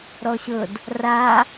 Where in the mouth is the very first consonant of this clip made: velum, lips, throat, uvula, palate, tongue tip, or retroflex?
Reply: tongue tip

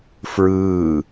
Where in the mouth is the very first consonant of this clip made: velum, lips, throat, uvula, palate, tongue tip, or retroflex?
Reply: lips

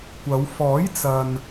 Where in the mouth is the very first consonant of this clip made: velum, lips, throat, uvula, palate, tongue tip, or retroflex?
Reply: velum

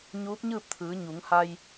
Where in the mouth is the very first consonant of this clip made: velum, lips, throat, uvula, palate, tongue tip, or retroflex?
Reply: palate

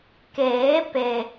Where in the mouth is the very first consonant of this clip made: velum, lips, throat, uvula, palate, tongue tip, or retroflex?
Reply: velum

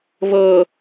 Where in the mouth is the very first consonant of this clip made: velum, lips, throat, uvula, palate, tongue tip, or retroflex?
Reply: lips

